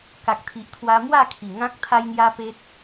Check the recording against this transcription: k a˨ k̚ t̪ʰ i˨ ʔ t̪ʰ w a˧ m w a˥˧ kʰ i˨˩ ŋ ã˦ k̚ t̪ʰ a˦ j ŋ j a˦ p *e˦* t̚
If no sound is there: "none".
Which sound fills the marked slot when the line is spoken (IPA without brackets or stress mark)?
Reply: e˦